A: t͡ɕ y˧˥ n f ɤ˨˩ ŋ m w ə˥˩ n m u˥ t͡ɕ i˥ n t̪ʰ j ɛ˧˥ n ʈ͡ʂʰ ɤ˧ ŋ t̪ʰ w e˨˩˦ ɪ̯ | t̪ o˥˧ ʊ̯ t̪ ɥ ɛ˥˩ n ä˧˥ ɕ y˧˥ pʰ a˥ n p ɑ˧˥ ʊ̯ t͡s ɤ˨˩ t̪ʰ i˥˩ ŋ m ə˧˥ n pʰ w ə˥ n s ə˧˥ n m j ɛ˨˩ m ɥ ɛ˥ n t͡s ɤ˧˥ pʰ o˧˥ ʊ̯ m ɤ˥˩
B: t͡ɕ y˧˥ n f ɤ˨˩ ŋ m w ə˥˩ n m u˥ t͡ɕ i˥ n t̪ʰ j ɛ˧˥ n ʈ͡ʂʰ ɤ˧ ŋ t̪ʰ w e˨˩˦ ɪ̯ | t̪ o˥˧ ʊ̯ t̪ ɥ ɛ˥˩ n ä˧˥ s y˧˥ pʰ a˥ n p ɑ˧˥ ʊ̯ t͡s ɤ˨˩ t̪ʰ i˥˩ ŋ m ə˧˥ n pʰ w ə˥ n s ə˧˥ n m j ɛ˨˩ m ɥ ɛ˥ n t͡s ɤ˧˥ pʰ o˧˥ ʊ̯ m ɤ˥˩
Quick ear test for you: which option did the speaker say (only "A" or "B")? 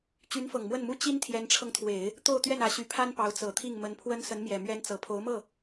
A